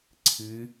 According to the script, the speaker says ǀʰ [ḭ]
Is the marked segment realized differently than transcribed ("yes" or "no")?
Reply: yes